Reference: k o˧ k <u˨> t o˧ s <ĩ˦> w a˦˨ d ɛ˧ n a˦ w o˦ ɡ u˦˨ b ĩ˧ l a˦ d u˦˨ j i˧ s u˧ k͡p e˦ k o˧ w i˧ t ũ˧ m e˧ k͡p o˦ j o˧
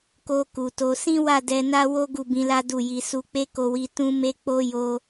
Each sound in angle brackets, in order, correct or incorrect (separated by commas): correct, correct